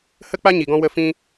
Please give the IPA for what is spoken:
hə˦k͡pa˦ɲi˨ɡɔ̃˧ wə˧fĩ˧

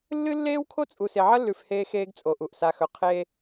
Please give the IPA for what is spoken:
lːɨ˦lːeː˦wkʰo˦t͡sʼu˨ se˨ʕɐ˦lːʉ˨f heː˦xeː˦ɡt͡sʼo˨ʔu˨ʔ sa˨xɵ˨ qʰe˦

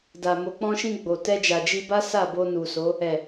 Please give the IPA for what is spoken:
da˨ mo˨k͡pɔ̃˧ʃĩ˧ ɡ͡bo˨ tɛ˧d͡ʒa˨d͡ʒi˧ba˦ sa˦˨bo˧nu˨so˨˦ | ɛ˨

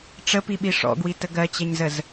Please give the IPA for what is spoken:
ʈ͡ʂəpiɓi ʂɔ̰ɡwitə ɡɜt͡ɕɛɲzəz

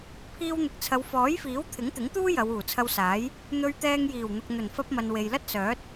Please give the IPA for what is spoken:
pʰiː˧wn̪ɪ˨k̚t͡sʰɐ˨˧w fɔː˨˥jfiː˨˥w t̪ʰɪ˨˥ŋt̪ɪ˨˥ŋt̪uː˥ jɐ˨˧wuː˨˩t͡sʰɐ˧wsaː˨˥j | n̪ɵ˧ɥt̪ɛː˧ŋ jiː˨˩wn̪ʊ˨k̚ n̪ɵ˨˩nfɐ˧p̚mɐ˨n we˨jlɐ˥t̚sœː˨˥t̚

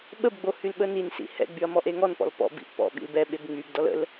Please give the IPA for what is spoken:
ɓəbɡ͡bohylɓə ninsḭ hɛ̰ɡ͡byɐ̯ mɔʔeŋɔnpɔ̰l pɔ̰bḭʔ pɔ̰ ɓḭlbɛɓeb ŋ͡mybdɔl ə̰l

